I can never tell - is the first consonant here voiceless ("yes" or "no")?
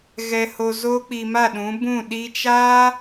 no